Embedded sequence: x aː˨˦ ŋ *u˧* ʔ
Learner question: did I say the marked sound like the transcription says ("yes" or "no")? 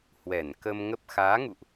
no